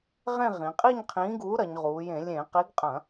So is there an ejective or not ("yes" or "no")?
yes